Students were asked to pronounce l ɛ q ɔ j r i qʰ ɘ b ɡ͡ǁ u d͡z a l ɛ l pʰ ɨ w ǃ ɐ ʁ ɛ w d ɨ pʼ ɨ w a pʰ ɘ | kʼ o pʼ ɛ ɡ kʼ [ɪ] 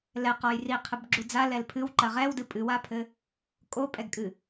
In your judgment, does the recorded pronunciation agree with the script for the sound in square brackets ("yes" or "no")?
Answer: no